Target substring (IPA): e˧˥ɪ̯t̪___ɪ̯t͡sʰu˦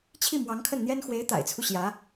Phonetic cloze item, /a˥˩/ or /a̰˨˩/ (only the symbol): a̰˨˩